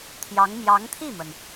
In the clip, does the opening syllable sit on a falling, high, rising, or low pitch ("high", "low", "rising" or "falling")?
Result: rising